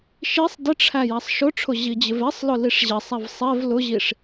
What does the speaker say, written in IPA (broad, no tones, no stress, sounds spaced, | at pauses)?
ʃ i sˤ d ɪ ʈ͡ʂʰ æ j æ sˤ ʃ ʊ ʈ͡ʂʰ ʊ ʑ i d͡ʑ ɪ v ɛ sˤ l ʊ l i ʂ ʑ ɛ sˤ æ v sˤ ɛ v l ʊ ʑ i ʂ